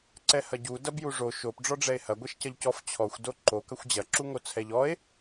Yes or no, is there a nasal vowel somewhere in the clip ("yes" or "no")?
no